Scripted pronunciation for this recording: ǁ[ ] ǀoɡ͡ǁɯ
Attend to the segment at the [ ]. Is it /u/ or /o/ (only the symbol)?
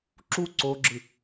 u